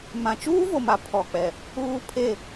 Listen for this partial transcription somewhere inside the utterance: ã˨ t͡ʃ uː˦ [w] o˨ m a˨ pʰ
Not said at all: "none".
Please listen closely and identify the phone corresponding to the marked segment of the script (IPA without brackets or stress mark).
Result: v